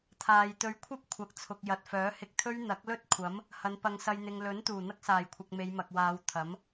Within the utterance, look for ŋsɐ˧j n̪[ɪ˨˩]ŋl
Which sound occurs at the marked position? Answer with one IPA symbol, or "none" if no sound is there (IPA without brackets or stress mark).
ɪ˨